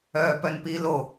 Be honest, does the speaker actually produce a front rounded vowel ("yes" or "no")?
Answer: yes